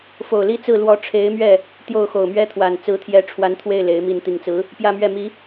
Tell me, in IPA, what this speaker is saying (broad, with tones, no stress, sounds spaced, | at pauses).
f o˨˩ ʊ̯ l i˥˧ t͡s ɹ̩˥˩ l w ɔ˧˥ ʈ͡ʂʰ e˧˥ ɪ̯ m ɥ ɛ˥˩ | t̪ j o˥˩ ʊ̯ x o˨˩ ʊ̯ m ɥ ɛ˥ t̪ʰ w a˨˩ n t͡s ɹ̩˧˥ t̪ʰ j ɛ˧˥ ʈ͡ʂʰ w a˧˥ n t̪ʰ w e˥˩ ɪ̯ l e˧˥ ɪ̯ m i˥˩ n t̪ i˨˩ ŋ t͡s ɹ̩˧˥ | p j ä˥˧ m ɥ ɛ˥˩ m i˧˥